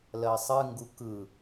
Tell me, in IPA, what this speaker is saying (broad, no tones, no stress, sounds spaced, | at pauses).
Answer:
l ɜ sˤ ɨ ŋ ɡ u k ɯ